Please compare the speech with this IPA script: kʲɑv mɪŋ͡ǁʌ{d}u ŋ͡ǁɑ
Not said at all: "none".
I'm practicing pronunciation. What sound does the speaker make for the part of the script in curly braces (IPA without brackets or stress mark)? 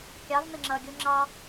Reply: ɡʲ